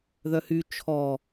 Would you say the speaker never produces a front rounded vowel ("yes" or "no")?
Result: no